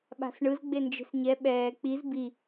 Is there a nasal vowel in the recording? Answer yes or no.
no